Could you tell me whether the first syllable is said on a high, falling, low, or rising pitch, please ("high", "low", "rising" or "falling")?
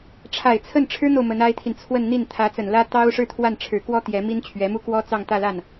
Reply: low